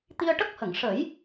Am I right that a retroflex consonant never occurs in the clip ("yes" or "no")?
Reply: no